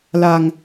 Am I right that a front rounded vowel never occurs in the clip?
yes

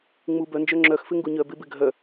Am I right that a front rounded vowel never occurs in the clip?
no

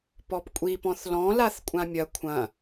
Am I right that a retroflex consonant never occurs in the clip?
yes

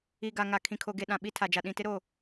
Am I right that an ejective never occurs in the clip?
yes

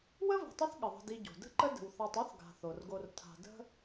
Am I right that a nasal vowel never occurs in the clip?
yes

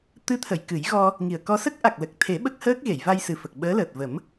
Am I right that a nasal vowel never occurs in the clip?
yes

